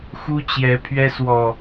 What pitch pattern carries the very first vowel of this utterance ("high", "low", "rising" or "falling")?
high